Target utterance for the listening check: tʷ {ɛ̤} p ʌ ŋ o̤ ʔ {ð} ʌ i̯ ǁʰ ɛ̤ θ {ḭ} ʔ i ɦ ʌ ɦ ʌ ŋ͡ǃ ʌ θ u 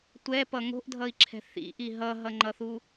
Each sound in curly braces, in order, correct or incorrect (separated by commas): incorrect, incorrect, correct